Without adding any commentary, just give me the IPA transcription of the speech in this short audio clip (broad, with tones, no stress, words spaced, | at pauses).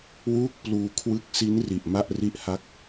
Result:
wuː˥˩k̚pluː˧ kʰwɯ˦˥k̚si˦˥nri˨˩ʔ ma˥˩ʔri˦˥ʔha˦˥k̚